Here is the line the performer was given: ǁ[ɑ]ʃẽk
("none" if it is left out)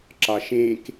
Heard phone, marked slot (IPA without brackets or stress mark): ɑ